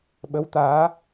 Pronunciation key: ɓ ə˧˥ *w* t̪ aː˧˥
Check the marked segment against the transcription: correct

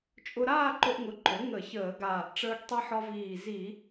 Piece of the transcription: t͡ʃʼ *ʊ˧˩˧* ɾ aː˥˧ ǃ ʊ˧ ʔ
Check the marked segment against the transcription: incorrect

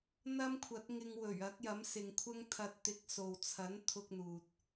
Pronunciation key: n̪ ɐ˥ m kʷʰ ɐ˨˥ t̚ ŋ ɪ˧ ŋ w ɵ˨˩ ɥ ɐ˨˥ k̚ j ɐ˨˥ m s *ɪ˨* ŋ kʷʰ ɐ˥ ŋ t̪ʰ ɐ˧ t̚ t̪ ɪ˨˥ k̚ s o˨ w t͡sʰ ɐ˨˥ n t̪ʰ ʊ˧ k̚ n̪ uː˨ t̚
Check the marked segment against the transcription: correct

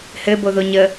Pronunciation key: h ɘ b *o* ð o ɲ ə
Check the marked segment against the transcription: correct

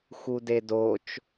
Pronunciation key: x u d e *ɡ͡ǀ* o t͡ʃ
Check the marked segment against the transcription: incorrect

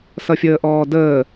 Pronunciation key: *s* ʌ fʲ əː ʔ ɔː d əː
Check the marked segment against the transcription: correct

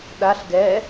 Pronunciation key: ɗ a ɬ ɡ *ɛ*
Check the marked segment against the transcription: correct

